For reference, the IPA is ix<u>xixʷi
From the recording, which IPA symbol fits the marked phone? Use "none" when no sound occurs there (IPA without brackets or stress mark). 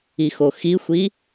o